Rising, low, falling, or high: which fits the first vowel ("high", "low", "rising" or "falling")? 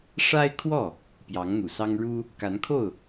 high